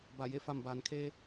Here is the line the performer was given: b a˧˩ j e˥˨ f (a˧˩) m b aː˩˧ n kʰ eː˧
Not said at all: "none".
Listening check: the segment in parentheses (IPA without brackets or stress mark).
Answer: a˧˩